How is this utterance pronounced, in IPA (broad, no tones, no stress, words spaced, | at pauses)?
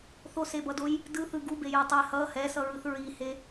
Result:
θosebʌdoj | dɯθɯ ɡubejo tˤe hʌ hɛsʌɹɯθ ɹihe